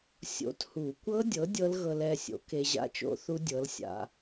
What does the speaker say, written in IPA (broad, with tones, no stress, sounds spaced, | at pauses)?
sʲ o̰˨˥ t h u˨˩˦ kʷ ɤ˦˥ dʲ ɤ˨˥ dʲ ɤ˦˥ l ɣ ɤ˧ l ɛ˩˧˩ sʲ o̰˨˩˦ k e˧ ʑ a̰˦˥ t͡ʃ o̰˦˥ θ u˦˥ dʲ ɤ˨˥ l sʲ a̰˧